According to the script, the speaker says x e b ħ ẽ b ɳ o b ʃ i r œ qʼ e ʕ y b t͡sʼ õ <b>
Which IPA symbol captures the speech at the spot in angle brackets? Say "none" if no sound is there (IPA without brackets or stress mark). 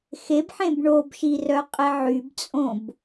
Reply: b